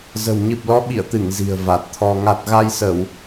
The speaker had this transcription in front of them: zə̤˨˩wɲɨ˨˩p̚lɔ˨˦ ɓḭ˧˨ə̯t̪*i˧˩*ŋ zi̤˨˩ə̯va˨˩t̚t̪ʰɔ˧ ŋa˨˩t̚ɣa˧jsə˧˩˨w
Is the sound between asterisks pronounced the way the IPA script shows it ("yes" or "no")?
no